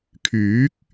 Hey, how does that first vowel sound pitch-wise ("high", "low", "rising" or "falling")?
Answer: rising